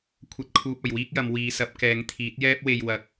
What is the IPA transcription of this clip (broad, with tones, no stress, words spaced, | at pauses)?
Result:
kʷʰɐ˨˥t̚kʰuː˨p̚ ɐ˨˩jwiː˥k̚jɐ˨˧m wiː˨˧sɐ˨˥p̚ kɛː˨˧ŋt̪ʰiː˨˥t̚jɛː˥p̚we˧j wɐ˨k̚